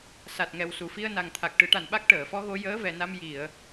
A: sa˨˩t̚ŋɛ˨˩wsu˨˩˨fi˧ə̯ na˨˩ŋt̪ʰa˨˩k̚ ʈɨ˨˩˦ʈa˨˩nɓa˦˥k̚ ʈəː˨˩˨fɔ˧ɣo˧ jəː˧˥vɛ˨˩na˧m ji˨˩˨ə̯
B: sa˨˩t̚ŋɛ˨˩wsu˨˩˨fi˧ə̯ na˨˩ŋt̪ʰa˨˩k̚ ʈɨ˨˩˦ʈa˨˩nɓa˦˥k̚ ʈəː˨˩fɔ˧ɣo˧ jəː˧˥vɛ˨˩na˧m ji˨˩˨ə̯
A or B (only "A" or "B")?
A